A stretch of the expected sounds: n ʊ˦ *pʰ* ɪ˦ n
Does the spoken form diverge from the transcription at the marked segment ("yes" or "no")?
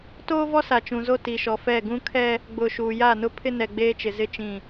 no